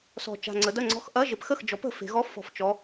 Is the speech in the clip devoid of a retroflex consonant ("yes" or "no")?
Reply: yes